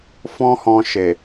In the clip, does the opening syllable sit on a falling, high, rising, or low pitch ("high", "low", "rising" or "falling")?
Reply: high